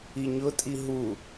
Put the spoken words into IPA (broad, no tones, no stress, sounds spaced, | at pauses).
i ɲ ʊ tʼ i ɦ u